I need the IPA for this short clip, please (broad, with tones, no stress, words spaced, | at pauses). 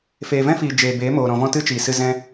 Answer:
feː˨vɛ̃˦fiː˨ d͡ʒeː˨beː˨˦moː˨ɾɔ̃˨ vɔ̃˦tɨ˦t͡ʃiː˨sɨ˧ zɛ̃˧